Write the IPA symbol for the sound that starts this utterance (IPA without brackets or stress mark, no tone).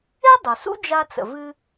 e